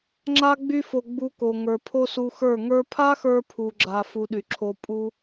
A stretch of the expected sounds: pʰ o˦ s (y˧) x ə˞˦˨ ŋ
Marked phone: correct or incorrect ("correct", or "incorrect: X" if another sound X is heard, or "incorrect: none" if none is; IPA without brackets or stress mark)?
incorrect: u˧